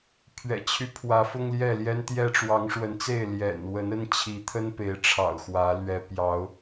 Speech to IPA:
pʰ ɥ ɛ̰˨˩ t͡ɕʰ y˦ pʰ w ä˨˦ f ʊ˦ ŋ l j ɛ˥˨ l j ɛ˦ n t̪ j ɛ˦ ʈ͡ʂ w ɑ˨˦ ŋ ʂ w ə˨˦ n t͡s e˥˨ ɪ̯ l j ɛ̰˨˩ n w ə˨˦ n ə˦ n t͡ɕʰ i˨˦ t̪ʰ ə˦ n p e˨˦ ɪ̯ ʈ͡ʂʰ ɑ̰˨˩ ʊ̯ x w ä˨˦ l ɥ ɛ˨˦ p j ɑ˨˦ ʊ̯

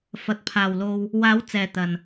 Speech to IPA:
f ɐ˨ t̚ pʰ aː˨ w l o˧ w | w aː˨˧ w t͡s ɛː˨ t̪ ɐ˨ n

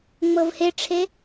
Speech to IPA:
ŋ͡m ɤ v h e ʈ͡ʂʰ e

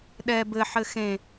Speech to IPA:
ɗ ɛ b ɘ ħ ɘ x ẽ

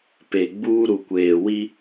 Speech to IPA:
p e˨ ɡ͡b uː˦ ɾ u˨ kʷ eː˨ w i˦

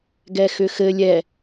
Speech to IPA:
ɡ ɛ x ʏ x ɘ lʲ ɛ

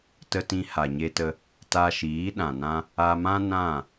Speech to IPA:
t ə˧ t ĩ˧ h a˨ ɲ e˧ t ə˧ | t a˧ ʃ iː˨˦ ɗ ã˨ n ã˧ | a˧ m ã˦ n ã˦˨

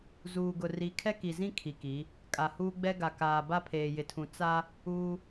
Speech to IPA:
z uː˨ ɡ ʊ˨ r i˨˦ kʰ ɛ˦ k i˨ z ĩ˦ kʰ i˨ k i˨˦ | kʼ a˨ h uː˦ ɡ͡b ɛ˦ ɡ a˨ k aː˨ b a˦ pʰ eː˨ j ɪ˨ tʰ ũ˨ t͡s a˦ | uː˦

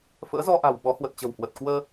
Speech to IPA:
f ə̰ː˧˥ z ɔ˧ ʔ a̤˨˩ w ɓ ɔ˨˦ h w ə˨˩ t̚ t͡ɕ ə̤˨˩ w h w ə˨˩ t̚ k w əː˧

